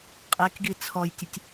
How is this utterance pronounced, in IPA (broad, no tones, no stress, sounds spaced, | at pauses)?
qʼ e k ɡ i t͡sʰ ɔ j tʲ ə tʲ